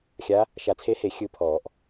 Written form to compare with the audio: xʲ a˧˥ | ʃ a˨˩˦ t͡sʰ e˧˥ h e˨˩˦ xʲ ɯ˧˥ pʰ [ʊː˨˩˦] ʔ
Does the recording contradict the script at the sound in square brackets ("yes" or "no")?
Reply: yes